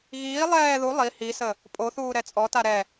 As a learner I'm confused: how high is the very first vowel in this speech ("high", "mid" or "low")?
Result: high